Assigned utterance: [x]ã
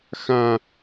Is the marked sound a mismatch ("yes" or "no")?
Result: no